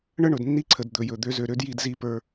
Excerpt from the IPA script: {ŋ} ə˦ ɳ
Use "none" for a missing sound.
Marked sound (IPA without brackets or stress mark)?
ɳ